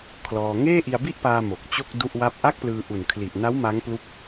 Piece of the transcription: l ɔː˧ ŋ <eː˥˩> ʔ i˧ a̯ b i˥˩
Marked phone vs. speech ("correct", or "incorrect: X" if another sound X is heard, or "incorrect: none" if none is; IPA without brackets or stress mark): correct